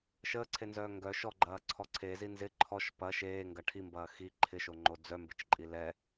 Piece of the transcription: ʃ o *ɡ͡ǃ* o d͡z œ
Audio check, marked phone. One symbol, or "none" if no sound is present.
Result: ŋ͡ǃ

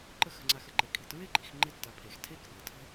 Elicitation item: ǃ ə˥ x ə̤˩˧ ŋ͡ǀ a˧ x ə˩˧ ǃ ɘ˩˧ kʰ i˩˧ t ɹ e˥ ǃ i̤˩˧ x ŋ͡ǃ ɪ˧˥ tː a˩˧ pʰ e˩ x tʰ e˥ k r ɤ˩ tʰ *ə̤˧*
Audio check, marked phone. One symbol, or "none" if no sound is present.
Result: ə̤˥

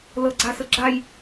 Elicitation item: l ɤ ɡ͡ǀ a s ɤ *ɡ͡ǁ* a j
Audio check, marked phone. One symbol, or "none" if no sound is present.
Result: ɡ͡ǁ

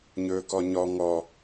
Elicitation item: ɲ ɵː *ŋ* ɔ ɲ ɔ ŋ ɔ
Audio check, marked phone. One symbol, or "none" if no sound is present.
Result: k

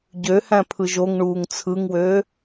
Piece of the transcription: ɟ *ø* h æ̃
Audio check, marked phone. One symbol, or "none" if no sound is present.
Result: ø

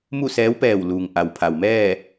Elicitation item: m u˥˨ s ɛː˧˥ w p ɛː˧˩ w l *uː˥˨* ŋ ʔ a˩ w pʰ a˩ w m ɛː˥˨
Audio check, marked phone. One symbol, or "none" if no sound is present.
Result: uː˩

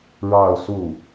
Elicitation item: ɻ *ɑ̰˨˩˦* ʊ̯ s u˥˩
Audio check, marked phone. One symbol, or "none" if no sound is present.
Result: ɑ˥˧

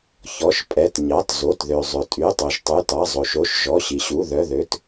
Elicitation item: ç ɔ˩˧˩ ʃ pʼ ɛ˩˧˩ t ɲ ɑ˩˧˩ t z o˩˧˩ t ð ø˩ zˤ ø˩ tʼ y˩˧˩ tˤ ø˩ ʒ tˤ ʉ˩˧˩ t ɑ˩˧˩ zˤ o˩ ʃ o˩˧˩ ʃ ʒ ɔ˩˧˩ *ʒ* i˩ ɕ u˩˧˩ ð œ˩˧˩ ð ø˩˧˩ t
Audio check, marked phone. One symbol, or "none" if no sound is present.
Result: ɕ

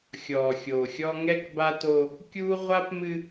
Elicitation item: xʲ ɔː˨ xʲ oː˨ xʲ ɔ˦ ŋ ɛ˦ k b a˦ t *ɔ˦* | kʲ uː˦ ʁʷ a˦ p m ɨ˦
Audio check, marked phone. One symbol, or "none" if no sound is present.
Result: o˦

